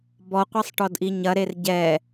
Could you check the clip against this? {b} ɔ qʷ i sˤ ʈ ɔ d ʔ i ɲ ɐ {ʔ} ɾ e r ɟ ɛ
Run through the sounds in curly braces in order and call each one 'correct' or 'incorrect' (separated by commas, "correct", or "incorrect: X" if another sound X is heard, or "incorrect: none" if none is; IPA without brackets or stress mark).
correct, incorrect: none